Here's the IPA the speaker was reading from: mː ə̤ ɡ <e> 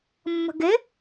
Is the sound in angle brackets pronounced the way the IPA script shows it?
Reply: yes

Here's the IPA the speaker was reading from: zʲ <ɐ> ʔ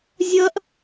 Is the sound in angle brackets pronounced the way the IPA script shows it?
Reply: yes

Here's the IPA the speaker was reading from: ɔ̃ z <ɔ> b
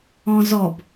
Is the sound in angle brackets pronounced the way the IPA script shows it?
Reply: yes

